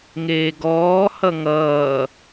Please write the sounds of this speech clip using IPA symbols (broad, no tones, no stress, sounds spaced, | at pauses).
ŋ eː ɡ ɔː h ʌ ŋ ʌː